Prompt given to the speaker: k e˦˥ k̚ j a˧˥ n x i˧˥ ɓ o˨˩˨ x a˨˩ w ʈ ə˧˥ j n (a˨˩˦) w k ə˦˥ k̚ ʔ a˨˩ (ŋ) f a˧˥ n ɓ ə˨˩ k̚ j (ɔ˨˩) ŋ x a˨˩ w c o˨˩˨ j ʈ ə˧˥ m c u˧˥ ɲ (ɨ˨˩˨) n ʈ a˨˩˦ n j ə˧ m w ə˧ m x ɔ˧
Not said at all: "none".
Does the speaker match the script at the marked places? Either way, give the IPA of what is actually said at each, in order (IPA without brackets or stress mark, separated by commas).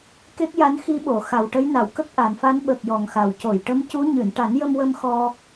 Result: a˨˩˨, n, ɔ˨˩, ɨ˨˩˨